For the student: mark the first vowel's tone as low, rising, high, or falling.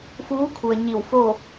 rising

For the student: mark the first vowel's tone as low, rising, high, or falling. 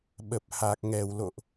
low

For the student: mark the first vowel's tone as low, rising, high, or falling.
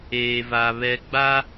low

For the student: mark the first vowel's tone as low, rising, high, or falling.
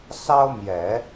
high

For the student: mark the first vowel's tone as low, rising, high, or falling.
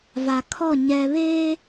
low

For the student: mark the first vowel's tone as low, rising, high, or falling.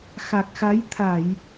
low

